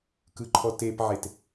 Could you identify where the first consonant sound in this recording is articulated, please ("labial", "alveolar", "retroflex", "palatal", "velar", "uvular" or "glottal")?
velar